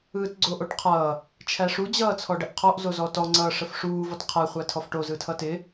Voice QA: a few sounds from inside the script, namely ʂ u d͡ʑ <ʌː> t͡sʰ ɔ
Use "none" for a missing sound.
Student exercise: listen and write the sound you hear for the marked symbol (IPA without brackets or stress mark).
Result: ʌː